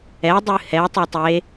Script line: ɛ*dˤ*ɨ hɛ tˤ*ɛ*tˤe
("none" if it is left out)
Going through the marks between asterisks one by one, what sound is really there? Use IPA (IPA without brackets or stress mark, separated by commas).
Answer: dˤ, ɛ